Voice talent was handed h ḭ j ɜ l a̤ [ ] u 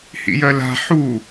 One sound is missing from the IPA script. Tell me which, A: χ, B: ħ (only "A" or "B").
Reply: B